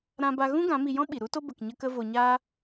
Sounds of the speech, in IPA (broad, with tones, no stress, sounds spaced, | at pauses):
ɾ ã˦ b a˦ ɣ ũ˦ ɡ ã˨˦ m i˧ j ɔ̃˦ ɓ i˨ ɾ u˦ t o˦ b ə˧ k ɲ ə˦ k ə˦ v o˧ ɲ aː˦